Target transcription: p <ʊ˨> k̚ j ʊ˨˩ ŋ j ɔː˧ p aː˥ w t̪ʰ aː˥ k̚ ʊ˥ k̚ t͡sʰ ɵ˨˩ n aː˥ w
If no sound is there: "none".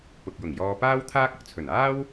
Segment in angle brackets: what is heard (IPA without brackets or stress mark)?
ʊ˨